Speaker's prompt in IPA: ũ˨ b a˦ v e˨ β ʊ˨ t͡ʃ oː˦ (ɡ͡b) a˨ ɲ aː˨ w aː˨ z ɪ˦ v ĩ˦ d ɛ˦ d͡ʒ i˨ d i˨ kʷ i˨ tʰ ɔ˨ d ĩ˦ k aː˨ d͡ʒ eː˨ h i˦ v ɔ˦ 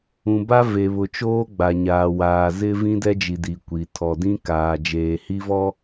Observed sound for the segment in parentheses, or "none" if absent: ɡ͡b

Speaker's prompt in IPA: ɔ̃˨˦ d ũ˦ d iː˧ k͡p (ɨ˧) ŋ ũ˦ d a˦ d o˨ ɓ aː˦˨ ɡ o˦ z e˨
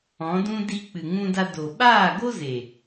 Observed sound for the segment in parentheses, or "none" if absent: ɨ˨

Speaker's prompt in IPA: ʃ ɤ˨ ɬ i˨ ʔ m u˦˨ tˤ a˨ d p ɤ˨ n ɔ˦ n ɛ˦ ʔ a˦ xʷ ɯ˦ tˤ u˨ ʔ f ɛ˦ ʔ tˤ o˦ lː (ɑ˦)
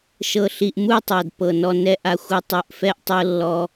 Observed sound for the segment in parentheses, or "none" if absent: ɔ˦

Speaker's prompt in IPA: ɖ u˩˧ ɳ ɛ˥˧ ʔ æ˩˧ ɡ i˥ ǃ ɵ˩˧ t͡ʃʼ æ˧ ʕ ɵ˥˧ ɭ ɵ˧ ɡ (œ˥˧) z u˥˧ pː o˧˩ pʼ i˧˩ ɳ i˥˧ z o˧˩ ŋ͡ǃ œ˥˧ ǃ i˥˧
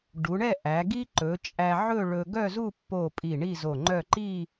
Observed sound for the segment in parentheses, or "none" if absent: œ˥˧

